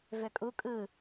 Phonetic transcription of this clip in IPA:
v ø kʼ u kʼ ɯ

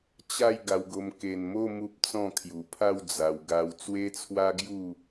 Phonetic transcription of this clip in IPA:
t͡ɕ a˥˧ j ɡ a˧ w ɡ o˧ m k e˨˩ n m o˥˧ m u˦ p̚ t͡s ɔ̃˥˧ kʰ j u˨˩ pʰ a˥˧ w d͡z a˧ w ɡ a˧ w t͡s w e˦ t͡sʰ w a˦ ɡ j u˥˧

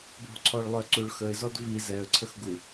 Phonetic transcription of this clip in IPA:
b o̤ ǀʰ ɔ ɭ lˠ œ ǀ u ɭ x ə ɪ̯ z ɔ d v i z ɛ ə̯ ǀʰ ə x ɡ u

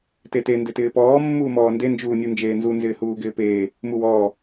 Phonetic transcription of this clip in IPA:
t e t e n d ɪ t ɪː p ɔː mː uː m ɔː n d e n d͡ʒ uː nʲ u n d͡ʒ eː n z u n z ɪː h uː ɡ ɪː p eː | m u w ɔː

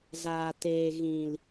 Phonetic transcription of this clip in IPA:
z aː˨ t eː˨ ɣ ĩ˨ l

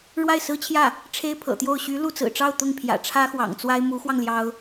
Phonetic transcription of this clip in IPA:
ɻ w a˥˩ ɪ̯ s ɹ̩˥ t͡ɕʰ j ä˥˩ | ʈ͡ʂʰ e˥ ɪ̯ pʰ ɤ̰˨˩ t̪ j o˥˩ ʊ̯ ɕ y˧˥ l u˥˩ t͡s ɹ̩˨˩ ʈ͡ʂ ɑ˥˧ ʊ̯ t̪ ʊ˥˩ ŋ pʰ j ä̰˨˩ ʈ͡ʂʰ ä˥ x w ɑ̰˨˩ ŋ t͡s w a˥ ɪ̯ m u˧˥ x w ɑ˧ ŋ l j ɑ˥ ʊ̯

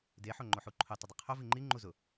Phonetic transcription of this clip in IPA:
d e ħ o ŋ͡ǃ o ħ u ǃʰ ʊ tˤ ɪ dˤ ɪ qʰ o v i ŋ͡ǃ i ŋ͡ǃ u z ʊ

